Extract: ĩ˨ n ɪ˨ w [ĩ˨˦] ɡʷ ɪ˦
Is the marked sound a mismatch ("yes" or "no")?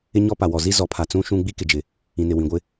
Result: yes